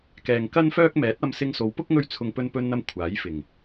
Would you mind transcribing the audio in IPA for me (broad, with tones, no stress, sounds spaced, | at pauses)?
k ɛː˨ ŋ k ɐ˥ n f œː˥ k̚ m ɛː˨˥ t̚ ɐ˧ m s ɪ˧ ŋ s o˨˧ w p ʊ˥ k̚ ŋ ɵ˥ ɥ t͡sʰ ʊ˧ ŋ p ɵ˧ n p ɵ˧ n n̪ ɐ˧ m kʷʰ aː˨˥ j f ɪ˨˩ ŋ